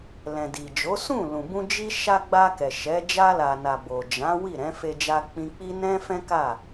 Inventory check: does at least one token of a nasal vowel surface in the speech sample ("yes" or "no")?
yes